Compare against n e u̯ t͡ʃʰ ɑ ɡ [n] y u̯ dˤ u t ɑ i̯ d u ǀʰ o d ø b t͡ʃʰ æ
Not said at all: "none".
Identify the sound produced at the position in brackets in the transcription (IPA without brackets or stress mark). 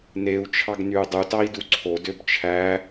n